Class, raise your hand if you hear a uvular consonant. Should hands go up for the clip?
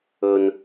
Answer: no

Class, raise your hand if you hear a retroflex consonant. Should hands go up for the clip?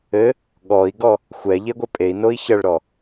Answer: yes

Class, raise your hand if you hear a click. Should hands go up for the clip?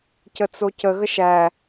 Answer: no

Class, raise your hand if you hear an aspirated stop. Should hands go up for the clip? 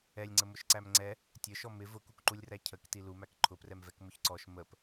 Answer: yes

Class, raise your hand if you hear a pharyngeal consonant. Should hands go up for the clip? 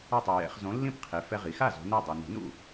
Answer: no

